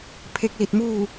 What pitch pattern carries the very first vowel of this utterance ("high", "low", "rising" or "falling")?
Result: rising